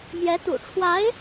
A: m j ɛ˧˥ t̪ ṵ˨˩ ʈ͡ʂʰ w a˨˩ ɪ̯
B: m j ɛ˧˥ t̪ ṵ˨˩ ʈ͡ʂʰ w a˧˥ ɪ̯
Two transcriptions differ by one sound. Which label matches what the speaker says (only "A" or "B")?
B